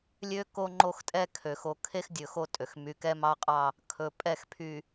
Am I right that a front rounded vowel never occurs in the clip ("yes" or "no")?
no